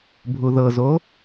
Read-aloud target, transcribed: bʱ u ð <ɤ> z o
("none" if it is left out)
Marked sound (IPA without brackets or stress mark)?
ɤ